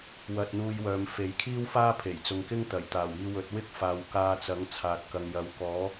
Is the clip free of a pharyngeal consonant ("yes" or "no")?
yes